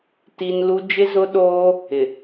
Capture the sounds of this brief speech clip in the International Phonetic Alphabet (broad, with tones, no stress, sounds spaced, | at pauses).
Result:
t i˨ n l u˦ d͡ʒ ɪ˦ z ʊ˦ ɗ oː˦ | ɪ˨